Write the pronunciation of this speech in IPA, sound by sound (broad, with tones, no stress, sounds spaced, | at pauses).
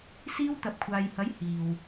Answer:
s iː˧ w t̪ ɐ˨ p̚ kʷʰ aː˨ j h ɐ˨˥ j h iː˨ w